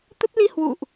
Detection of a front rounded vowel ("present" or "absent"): absent